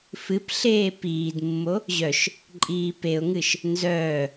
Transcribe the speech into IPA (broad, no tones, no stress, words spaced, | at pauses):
fɨpɬeː piːdmːo | ʑœʃ | ǃʼiːpeʊ̯ŋɨʃ | nzœː